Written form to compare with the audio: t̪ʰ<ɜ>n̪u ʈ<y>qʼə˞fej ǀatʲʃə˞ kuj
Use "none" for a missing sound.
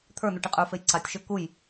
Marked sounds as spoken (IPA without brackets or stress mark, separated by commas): ə˞, i